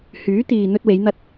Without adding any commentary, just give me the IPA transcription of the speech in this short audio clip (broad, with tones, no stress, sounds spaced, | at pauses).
h yː˨˥ t̪ iː˨ n̪ ɵ˧ t̚ w e˨˧ j n̪ ɐ˧ t̚